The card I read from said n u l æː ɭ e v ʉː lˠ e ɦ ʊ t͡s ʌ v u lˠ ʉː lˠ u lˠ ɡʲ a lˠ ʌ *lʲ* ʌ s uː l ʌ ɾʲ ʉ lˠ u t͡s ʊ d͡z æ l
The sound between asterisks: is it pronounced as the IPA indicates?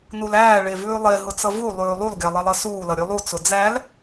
no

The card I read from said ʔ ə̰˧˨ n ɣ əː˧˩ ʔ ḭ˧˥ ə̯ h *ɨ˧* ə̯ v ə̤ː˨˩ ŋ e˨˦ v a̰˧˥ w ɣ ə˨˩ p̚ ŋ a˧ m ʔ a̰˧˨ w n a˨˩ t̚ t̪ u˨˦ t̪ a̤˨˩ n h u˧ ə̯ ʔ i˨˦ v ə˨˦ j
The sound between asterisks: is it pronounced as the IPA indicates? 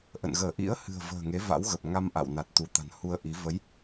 no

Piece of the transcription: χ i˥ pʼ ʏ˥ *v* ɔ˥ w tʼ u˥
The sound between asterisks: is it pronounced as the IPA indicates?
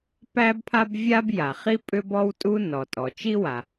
no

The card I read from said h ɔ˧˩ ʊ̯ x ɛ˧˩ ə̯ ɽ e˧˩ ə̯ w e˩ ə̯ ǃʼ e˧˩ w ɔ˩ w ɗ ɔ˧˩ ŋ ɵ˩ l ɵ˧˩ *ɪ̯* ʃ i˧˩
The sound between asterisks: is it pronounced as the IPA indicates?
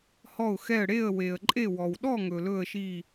no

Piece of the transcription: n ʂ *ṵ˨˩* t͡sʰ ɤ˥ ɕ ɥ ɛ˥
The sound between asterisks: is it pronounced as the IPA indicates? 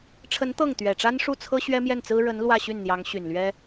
no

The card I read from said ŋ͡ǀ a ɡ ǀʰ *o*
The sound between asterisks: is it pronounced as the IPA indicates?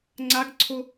yes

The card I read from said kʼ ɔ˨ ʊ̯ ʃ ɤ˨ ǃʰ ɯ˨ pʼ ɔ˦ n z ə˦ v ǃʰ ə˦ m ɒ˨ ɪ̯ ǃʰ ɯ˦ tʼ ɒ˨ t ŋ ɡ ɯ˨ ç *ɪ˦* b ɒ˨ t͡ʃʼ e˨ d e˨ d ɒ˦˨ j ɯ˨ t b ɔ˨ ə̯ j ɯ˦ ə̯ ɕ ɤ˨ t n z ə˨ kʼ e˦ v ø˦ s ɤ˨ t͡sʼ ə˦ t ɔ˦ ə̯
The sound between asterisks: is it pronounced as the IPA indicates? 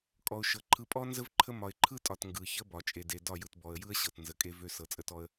no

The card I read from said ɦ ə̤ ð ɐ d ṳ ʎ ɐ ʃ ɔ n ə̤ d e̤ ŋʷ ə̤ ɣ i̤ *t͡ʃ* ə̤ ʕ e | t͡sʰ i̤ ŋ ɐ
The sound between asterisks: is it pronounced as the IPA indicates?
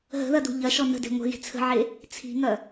no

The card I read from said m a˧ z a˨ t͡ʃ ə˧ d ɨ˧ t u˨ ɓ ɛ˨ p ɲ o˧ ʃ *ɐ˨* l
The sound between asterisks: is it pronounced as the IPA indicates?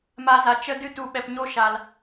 no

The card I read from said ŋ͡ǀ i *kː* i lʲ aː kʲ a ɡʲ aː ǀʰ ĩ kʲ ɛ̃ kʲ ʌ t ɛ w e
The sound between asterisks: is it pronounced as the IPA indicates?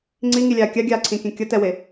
no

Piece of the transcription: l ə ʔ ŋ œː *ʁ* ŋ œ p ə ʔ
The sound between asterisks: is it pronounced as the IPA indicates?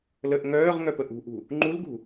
yes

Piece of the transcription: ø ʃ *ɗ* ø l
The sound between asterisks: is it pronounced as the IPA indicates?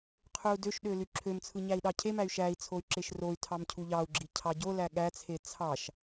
yes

